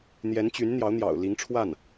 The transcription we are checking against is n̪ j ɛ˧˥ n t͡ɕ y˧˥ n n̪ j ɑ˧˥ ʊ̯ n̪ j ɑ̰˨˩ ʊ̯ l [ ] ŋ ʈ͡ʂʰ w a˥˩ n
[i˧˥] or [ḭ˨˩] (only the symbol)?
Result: i˧˥